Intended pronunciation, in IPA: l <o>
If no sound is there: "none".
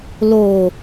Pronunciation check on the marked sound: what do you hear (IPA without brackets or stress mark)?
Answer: o